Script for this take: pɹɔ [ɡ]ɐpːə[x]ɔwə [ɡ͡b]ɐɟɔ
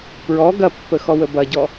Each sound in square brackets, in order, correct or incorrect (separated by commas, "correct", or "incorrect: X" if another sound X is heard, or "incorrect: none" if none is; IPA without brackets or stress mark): correct, correct, incorrect: b